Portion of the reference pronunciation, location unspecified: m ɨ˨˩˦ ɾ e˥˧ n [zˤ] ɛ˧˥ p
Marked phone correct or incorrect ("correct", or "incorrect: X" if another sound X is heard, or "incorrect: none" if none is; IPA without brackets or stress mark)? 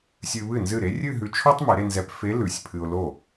incorrect: z